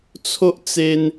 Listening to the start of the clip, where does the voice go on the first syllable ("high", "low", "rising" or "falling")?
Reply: high